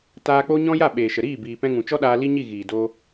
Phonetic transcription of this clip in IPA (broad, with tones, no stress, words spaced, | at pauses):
taː˧k͡po˦ ɲɔ̃˦ ja˦˨ɓeː˨ʃə˨ɾiː˦˨ biː˨pɛ̃˧ŋũ˨ t͡ʃɔ˦ɗaː˧ li˦ɲi˦˨ ɣiː˨doː˧